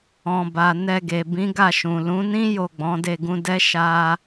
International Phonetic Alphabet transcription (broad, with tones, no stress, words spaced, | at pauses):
ɔ̃˨ba˨ nɛ˧ɡe˨ bĩ˨˦ɡa˦˨ʃũ˨ lũ˨˦nĩ˦ jo˦˨ɡ͡bɔ̃˨˦de˦˨ ɡũ˧dɛ˦ ʃa˧